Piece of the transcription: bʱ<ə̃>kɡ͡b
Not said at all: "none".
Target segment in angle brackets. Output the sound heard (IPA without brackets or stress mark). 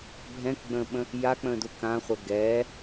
ɛ̃